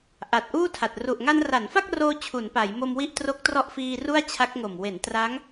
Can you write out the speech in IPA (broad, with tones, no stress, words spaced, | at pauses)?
ʔa˨˩t̚ʔuː˥˩tʰa˨˩t̚ ru˨˩ʔ ŋa˧nra˩˦nfa˥˩k̚roː˧ t͡ɕʰu˩˦npa˩˦jmo˧m wi˥˩ʔ tro˦˥k̚trɔ˦˥ʔfiː˧ ru˥˩a̯t͡ɕʰa˦˥k̚ŋo˨˩m we˩˦n tra˦˥ŋ